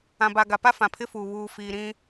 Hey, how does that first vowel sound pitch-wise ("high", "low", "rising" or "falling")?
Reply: low